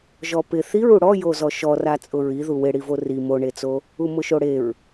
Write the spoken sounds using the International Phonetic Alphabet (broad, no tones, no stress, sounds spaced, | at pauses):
ʒ ɔ p ɪ θ i ɹ u ɽ ɔ j o z ɔ ʃ ɔ r a t͡sʼ ʊ ɹ i ð u w ɪ ɽ i v o r i m o ɳ e t͡s o | u m ʊ ʃ o ɽ e ɹ